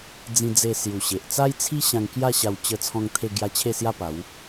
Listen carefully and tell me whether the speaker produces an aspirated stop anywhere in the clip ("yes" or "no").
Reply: yes